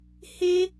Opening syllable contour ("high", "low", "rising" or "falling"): high